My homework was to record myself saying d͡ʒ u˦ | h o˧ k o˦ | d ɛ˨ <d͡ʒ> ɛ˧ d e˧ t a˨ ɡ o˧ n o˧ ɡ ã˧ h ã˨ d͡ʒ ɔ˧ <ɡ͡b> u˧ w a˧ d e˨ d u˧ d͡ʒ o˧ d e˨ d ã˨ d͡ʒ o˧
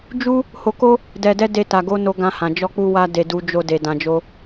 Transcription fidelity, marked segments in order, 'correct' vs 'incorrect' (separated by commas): incorrect, incorrect